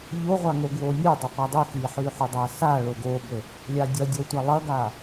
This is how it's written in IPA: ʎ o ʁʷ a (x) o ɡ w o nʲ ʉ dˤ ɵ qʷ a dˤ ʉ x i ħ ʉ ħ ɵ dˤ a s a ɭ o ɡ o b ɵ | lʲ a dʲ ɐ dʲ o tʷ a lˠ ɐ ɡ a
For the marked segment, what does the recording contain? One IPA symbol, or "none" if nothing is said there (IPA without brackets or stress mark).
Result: ŋ